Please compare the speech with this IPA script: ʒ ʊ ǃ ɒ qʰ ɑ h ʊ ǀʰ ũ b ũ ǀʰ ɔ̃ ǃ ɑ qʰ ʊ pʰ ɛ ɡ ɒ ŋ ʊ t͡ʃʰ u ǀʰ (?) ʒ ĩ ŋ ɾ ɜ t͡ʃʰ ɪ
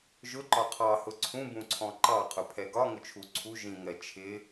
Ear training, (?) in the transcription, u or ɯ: u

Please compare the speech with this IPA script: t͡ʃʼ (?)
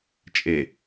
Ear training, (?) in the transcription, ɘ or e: e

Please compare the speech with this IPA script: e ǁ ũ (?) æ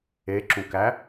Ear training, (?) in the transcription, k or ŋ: k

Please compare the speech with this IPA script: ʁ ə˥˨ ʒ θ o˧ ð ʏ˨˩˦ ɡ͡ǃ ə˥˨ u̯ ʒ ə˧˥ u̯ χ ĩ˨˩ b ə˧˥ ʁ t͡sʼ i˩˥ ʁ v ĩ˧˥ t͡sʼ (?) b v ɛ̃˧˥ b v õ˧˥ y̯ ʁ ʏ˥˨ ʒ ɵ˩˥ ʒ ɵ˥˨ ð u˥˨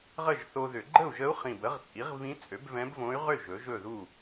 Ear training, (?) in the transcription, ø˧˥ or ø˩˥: ø˩˥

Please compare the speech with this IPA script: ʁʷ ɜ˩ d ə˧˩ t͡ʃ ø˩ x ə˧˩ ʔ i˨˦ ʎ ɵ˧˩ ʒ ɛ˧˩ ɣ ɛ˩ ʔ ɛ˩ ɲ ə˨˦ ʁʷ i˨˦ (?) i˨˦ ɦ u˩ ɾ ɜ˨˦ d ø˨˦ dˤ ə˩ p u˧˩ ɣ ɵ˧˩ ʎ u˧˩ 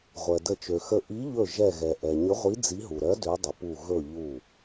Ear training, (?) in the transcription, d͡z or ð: d͡z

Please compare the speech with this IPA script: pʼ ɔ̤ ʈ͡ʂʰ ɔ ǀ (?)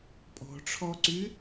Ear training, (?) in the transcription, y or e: y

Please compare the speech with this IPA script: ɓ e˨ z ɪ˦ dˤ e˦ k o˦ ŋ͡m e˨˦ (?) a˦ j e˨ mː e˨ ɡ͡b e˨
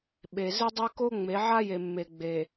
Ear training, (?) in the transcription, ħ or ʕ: ʕ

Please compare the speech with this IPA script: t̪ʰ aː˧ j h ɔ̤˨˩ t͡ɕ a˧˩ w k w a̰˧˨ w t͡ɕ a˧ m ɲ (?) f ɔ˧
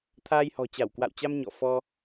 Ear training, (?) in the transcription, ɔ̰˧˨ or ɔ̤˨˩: ɔ̰˧˨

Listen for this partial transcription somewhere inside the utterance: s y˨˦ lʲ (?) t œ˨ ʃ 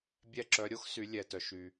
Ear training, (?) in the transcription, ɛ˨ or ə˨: ɛ˨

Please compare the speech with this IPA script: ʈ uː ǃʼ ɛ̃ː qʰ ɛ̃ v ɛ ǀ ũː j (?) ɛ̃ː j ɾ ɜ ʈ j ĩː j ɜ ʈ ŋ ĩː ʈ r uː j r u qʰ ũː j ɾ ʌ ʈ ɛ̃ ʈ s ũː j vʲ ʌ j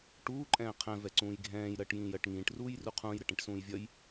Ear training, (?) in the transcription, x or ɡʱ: ɡʱ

